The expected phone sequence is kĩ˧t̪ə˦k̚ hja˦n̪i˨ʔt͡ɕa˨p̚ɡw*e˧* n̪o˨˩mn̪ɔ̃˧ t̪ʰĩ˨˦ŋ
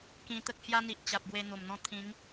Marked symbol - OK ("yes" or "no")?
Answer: yes